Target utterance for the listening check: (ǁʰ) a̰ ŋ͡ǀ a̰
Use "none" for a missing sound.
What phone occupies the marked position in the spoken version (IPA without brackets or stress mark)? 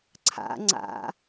ǀʰ